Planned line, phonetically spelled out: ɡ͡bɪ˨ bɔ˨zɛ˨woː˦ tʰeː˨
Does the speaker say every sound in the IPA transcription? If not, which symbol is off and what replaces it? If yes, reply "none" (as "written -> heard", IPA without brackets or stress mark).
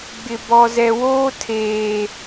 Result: none